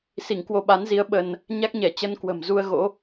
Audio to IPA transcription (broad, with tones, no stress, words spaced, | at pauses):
si˧˩ŋkwo˧ɓa˨˦nzi˨˦ə̯ ɓə˧n | ɲa˦˥k̚ɲɛ˧˩ t͡ɕə˧nkwə̤˨˩mzu˧ə̯ ɣo̰˧˥